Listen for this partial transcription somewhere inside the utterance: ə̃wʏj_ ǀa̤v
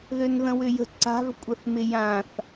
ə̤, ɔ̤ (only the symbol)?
ə̤